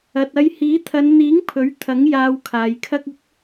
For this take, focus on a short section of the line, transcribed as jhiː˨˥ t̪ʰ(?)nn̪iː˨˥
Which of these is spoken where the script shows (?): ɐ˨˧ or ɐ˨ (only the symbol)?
ɐ˨˧